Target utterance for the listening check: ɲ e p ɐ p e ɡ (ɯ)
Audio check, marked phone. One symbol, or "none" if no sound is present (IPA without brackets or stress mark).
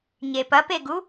u